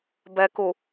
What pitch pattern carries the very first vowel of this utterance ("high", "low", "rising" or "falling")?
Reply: low